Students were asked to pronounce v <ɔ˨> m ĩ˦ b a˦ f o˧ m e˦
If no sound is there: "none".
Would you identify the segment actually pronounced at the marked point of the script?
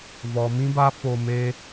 ɔ˨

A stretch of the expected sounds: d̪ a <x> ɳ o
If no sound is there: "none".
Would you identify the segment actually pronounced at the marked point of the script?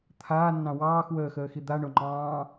none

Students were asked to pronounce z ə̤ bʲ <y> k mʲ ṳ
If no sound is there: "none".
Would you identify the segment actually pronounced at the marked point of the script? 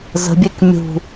e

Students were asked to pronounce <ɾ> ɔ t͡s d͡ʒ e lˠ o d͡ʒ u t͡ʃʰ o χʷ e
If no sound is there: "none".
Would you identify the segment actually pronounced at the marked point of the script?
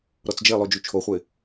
ɾ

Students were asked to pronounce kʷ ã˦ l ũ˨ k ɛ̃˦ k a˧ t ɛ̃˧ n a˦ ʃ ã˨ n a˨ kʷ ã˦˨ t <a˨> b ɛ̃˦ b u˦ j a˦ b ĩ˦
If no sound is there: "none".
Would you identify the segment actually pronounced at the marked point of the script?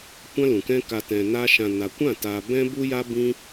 a˧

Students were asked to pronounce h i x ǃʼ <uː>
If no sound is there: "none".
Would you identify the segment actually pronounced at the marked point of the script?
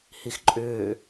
ʏː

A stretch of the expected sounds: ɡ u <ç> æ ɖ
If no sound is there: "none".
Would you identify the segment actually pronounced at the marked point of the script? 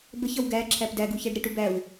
ç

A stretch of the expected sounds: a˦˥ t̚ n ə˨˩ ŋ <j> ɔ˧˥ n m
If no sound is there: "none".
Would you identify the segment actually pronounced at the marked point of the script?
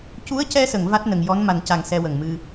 j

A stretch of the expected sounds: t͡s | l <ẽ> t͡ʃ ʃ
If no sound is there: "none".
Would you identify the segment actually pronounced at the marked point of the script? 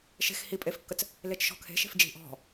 e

